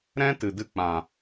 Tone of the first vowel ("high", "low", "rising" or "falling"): high